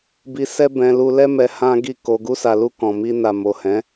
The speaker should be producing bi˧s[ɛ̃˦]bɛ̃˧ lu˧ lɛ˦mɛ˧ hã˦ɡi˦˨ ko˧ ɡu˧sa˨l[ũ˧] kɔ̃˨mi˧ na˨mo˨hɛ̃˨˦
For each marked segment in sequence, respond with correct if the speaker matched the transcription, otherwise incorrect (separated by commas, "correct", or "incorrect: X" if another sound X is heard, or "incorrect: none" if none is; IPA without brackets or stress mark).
incorrect: ɛ˦, incorrect: u˧